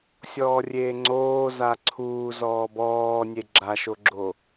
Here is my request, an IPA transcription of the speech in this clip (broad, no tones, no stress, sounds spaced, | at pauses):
sʲ ɔː rʲ eː ŋ͡ǀ oː z a ǀʰ uː z ɔː b ɔː nʲ e ɡ͡ǁ a ʃ o ɡ͡ǁ o